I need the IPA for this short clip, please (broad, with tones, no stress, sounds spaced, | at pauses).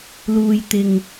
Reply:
l uː˨ j t̪ ɪ˨ ŋ